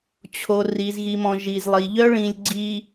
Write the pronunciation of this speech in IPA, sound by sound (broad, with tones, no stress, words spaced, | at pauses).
t͡ɕʰo˨ ri˨zɣi˨mɔ̃˨ ʒi˨zlˠi˨ʎœ˦ ɭĩ˨lʲɡ͡ǀi˨